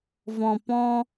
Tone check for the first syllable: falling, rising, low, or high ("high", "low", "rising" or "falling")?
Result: low